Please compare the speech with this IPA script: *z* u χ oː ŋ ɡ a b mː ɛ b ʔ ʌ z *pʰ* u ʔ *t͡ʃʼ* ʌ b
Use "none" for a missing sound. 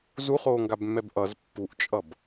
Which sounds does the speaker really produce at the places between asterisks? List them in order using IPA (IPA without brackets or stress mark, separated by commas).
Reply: z, pː, t͡ʃʼ